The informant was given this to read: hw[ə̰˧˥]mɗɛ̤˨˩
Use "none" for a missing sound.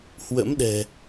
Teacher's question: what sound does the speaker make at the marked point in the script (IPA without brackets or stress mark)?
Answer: ə̰˧˥